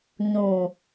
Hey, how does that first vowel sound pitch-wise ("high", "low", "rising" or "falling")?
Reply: low